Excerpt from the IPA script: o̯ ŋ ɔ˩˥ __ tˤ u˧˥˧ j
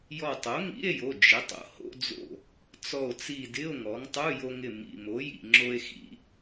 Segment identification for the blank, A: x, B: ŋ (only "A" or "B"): B